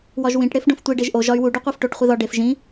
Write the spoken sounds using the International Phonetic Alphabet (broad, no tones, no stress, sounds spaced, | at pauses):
w ɒ ʒ w ĩ ʈ ɽ e f ɖ õ f tʷ i ɖ e ʒ ʔ o ʒ ɒ y̯ w u ɖ u qʷ æ f ʈ o ʈ χʷ i ð ɒ ɖ e f ʒ ĩ